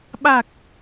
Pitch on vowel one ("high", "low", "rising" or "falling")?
low